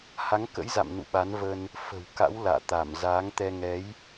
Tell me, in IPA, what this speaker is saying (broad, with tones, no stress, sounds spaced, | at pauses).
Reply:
h a˨˦ ŋ k ə̰˧˥ j z a̰˧˨ m n ṵ˧˨ ɓ a˨˦ n v ə˧ n | f ə̤˨˩ w k a̰˧˥ w l a̰ː˧˨ t̪ a˧˩ m z aː˨˦ ŋ t̪ ɛ˧ ŋ ɛ˨˦ j